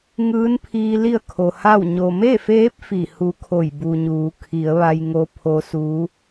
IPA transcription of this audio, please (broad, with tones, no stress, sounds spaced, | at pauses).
ŋ ɯː˧˥ n pʰ iː˧ l i˥˨ ə̯ kʰ o˩ h a˥˨ w ɲ o˩ m e˥˨ f eː˧˥ p̚ f i˧˩ h u˧˥ kʰ o˧˩ j b u˩ ɲ uː˩˧ kʰ i˩˧ ə̯ ʋ a˧ j ŋ o˧ pʰ o˧ s u˧˥